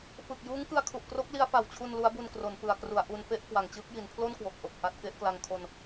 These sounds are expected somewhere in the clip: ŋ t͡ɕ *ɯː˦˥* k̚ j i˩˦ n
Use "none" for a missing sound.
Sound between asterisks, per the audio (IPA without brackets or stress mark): ɯː˦˥